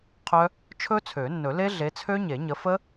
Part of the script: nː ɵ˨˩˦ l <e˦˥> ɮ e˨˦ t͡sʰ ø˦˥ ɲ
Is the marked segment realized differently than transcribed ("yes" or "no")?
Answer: no